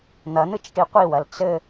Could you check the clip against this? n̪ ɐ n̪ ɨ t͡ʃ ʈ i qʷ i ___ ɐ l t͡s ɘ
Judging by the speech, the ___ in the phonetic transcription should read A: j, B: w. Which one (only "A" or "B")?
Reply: B